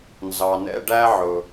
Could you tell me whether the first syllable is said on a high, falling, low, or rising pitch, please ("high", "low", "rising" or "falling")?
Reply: low